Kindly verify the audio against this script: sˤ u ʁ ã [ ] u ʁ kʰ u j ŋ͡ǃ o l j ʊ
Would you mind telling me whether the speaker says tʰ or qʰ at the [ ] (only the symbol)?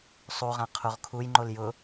qʰ